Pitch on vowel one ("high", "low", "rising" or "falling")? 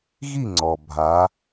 falling